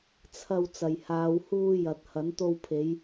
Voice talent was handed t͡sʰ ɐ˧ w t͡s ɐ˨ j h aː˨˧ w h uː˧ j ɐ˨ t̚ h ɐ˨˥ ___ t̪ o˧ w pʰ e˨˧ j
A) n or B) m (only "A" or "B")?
A